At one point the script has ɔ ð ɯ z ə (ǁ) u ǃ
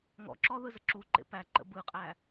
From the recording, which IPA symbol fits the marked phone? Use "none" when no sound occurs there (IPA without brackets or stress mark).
ǁ